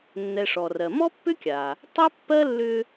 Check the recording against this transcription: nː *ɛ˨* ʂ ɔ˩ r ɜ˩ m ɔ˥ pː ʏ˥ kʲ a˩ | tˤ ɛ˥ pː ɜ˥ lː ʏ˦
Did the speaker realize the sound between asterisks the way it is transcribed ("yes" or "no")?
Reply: yes